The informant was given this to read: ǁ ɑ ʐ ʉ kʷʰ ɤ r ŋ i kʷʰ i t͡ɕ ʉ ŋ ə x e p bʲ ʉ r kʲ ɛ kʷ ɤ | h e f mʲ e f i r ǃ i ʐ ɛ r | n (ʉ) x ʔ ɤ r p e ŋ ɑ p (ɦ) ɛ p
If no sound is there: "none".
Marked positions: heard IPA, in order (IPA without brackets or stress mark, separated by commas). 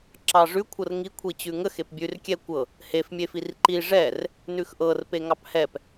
ʉ, h